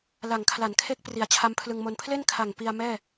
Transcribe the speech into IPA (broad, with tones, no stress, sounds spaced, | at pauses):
l a˨˩ ŋ kʰ l a˩˦ n kʰ e˦˥ k̚ p r i˩˦ a̯ t͡ɕʰ a˦˥ m pʰ l ɯ˧ ŋ m o˧ n pʰ l e˥˩ n kʰ a˨˩ ŋ p i˧ a̯ m ɛː˥˩